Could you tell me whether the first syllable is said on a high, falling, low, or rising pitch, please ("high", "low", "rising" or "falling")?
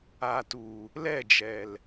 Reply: low